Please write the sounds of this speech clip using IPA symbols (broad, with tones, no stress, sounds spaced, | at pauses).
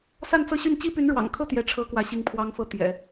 s a˥˧ n t͡s ɤ˥˧ ɕ y˥˩ n t͡ɕ i˥ p y˧˥ n ɻ w ɑ̰˨˩ ŋ kʰ ɤ˥˧ t̪ j ɛ˥˩ ʈ͡ʂʰ ɤ˥ k w ä˥˧ ɕ i˥˩ ŋ pʰ w ɑ˥ ŋ f ɤ˥˩ t̪ j ɛ̰˨˩˦